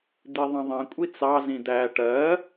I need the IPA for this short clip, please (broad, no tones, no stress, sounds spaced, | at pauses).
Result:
d̪ i ðˤ ĩ ðˤ ĩ kʷʼ i t͡s ɑ z ĩ d̪ æ ʈ ɜ